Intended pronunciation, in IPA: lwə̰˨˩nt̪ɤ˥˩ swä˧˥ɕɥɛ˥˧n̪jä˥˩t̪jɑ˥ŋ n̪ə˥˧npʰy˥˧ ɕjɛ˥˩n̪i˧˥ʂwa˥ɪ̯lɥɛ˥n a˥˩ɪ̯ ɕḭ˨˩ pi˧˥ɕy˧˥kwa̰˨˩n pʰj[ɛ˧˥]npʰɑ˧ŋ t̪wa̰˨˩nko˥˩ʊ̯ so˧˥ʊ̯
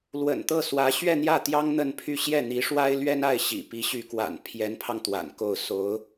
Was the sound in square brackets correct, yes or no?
yes